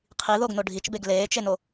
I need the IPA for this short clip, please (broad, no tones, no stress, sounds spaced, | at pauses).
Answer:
qʰ i ð o ɡ n o ɖʱ i t͡ʃ b e ɡ l eː t͡ʃ e n o